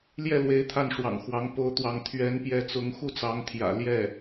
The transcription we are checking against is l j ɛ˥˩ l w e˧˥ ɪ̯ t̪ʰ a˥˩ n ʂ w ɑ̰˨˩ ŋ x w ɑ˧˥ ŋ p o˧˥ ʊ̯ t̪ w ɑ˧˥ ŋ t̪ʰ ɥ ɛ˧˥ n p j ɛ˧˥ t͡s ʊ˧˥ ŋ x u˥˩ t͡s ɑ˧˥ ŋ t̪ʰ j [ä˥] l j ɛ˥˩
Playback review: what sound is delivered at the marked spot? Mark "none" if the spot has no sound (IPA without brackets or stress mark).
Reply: ä̰˨˩